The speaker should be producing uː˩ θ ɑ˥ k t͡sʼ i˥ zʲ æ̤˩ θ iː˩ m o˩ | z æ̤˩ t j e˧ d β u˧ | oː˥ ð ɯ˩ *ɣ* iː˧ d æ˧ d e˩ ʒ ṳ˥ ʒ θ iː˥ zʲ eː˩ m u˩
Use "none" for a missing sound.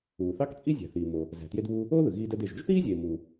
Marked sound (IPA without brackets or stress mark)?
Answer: ɣ